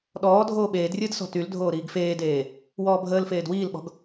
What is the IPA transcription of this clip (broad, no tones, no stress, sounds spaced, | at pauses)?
ɗ ɔː dʱ oː ɓ eː d rʲ əː d s ɔ̤ t y l dʱ oː ɾ iː ɡ f eː d eː | w ɔː bʱ əː l f eː d w iː l ɓ ɔ̤ ɡ